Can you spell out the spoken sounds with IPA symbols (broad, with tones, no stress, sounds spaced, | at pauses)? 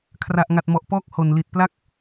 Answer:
kʰ r a˨˩ ʔ ŋ a˨˩ t̚ m ɔ˨˩ ʔ p ɔː˥˩ k̚ h o˨˩ n l i˨˩ t̚ p l a˥˩ k̚